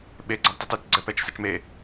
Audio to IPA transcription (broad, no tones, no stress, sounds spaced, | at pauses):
ɓ e ɡ͡ǀ a ɖ tˤ i t ɘ t ɡ͡ǀ ɛ p ɛ t͡ʃ s ɛ t͡ʃ m e